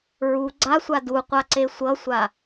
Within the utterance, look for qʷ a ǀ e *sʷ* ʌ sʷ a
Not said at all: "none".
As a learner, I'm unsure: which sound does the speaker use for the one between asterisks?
sʷ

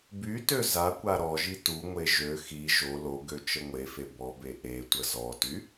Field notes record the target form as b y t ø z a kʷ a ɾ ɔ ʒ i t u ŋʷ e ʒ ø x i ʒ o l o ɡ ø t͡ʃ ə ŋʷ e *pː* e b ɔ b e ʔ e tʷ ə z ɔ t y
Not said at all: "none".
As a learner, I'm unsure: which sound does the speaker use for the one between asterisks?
f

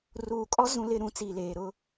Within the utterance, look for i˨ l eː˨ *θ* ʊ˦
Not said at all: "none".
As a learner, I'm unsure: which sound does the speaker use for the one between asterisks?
ɾ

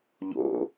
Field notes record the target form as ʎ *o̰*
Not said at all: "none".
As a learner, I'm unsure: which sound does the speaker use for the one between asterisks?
o̰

